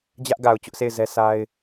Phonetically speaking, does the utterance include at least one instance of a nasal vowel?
no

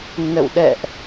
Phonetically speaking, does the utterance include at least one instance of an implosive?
yes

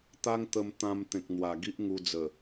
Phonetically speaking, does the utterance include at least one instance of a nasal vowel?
yes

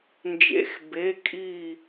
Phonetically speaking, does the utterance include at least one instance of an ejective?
yes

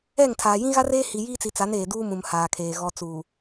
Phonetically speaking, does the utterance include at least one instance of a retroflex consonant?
no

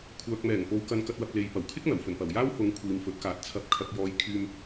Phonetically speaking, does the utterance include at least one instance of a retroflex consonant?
no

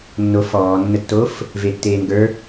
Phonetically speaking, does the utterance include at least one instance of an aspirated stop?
no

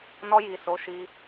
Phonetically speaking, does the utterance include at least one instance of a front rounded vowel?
no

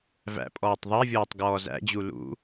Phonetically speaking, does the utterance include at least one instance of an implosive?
no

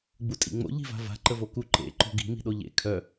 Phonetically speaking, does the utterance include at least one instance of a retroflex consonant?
no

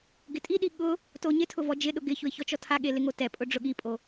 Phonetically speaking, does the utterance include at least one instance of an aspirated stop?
yes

